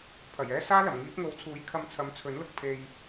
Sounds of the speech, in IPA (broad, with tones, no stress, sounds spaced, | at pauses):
pʰ ɐ˨˩ j ɛː˥ s aː˥ l ɐ˨˩ m ŋ iː˨˥ p̚ ŋ o˨˧ w t͡sʰ uː˨˥ j kʰ ɐ˧ m t͡sʰ ɐ˨˥ m t͡sʰ ɵ˨˥ n l ʊ˨ k̚ pʰ e˧ j